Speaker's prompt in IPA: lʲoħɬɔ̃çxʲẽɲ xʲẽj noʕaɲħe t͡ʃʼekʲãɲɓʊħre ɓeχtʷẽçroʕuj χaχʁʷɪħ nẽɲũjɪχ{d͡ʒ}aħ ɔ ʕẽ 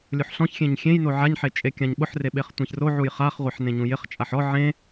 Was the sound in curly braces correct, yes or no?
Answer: no